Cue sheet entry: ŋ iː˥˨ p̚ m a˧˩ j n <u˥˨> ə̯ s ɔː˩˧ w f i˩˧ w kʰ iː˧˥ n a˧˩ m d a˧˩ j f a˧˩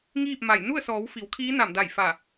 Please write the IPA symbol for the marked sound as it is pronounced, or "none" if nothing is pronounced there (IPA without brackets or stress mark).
u˥˨